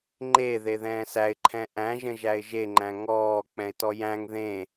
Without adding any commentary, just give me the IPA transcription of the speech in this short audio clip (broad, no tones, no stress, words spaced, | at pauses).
ŋ͡ǃe ðeðɛ̃ːsæɪ̯ǃʰɛ̃ ʔæ̃ʒə̃ ʒæɪ̯ʒeŋ͡ǃæ̃ ŋɔː k͡pɛ̃ɪ̯tɔjæ̃ŋ ðẽ